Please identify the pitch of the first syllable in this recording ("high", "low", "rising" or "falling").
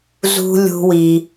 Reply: high